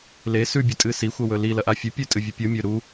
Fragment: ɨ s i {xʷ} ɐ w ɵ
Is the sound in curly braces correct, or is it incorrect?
correct